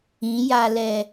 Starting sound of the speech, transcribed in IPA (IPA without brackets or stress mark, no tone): ĩ